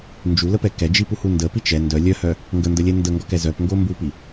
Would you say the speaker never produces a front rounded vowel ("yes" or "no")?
no